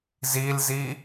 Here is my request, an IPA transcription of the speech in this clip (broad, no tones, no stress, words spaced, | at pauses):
zilzi